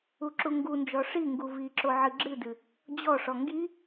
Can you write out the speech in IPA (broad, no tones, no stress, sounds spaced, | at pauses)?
u ǁ u ŋ ɡ u n d͡ʒ ɔ ʂ i ŋ ɡ u v i ǁ o ʕ ɨ ɡ͡ǁ ɨ d ɨ | d͡ʑ ɔ ʂ ɔ ŋ ɡ i